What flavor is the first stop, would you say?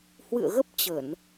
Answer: plain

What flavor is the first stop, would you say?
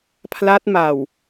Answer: aspirated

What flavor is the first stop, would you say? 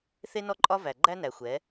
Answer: click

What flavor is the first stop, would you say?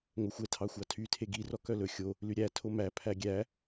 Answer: aspirated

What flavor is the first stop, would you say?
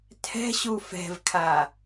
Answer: aspirated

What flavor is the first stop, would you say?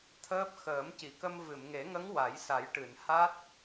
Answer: aspirated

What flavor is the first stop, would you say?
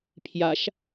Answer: aspirated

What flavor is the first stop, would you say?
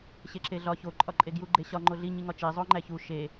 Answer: click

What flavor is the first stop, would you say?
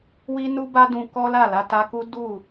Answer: plain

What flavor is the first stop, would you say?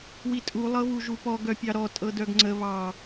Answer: ejective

